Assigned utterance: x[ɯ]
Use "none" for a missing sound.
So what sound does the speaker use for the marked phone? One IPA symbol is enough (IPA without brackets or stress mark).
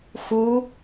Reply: u